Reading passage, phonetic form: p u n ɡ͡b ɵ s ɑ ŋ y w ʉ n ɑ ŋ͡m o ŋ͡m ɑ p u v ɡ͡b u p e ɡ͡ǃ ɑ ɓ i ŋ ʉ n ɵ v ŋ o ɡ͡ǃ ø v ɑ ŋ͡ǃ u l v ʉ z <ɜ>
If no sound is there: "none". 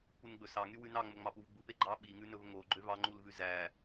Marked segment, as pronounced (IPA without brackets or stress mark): æ